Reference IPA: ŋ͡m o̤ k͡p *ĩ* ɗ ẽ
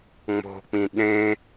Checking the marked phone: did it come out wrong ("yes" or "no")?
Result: no